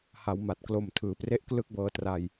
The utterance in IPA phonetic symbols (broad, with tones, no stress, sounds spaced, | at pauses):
h a˩˦ w m a˨˩ t̚ k l o˨˩ m tʰ ɯː˩˦ p r e˥˩ ʔ k l ɯ˥˩ k̚ b ɤː˧ t r a˧ j